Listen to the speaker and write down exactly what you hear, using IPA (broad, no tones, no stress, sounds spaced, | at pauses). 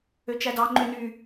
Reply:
ø t͡ʃ æ d ɑ ŋ͡ǃ ø n y